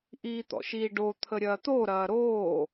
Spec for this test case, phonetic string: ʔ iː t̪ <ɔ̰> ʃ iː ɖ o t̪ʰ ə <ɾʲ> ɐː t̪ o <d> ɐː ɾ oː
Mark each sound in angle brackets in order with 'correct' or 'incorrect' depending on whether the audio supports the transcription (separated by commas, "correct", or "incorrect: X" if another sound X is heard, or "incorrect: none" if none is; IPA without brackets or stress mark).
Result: correct, correct, incorrect: ɾ